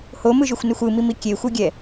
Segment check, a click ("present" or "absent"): absent